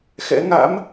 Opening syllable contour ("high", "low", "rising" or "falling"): rising